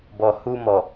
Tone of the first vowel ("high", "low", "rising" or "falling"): low